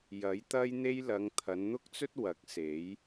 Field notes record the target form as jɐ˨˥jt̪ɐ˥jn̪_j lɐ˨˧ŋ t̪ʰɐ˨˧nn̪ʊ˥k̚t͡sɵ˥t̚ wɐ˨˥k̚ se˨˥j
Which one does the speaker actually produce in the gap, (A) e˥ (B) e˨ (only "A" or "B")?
A